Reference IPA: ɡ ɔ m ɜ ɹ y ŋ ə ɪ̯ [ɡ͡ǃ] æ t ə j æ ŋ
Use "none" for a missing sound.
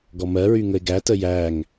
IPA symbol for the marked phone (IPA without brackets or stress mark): ɡ